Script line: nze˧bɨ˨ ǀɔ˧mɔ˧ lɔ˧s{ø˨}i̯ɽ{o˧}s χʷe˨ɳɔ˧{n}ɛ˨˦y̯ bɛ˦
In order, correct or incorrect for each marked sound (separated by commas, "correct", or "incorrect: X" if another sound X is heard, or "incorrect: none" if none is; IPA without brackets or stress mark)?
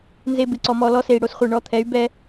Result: incorrect: e˨, correct, incorrect: t̪ʰ